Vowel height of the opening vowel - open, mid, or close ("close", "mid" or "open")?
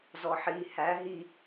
mid